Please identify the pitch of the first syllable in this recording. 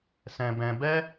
low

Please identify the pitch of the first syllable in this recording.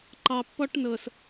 low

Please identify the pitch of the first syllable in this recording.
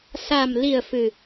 low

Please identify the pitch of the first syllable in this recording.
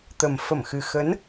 low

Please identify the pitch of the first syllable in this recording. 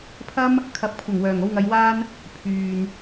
high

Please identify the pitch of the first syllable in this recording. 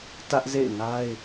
high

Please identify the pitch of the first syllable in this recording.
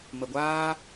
low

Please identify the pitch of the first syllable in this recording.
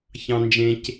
low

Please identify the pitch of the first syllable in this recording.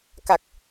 low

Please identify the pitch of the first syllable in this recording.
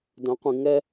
rising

